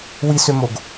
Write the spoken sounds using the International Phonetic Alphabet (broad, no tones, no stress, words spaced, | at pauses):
wisømoɡ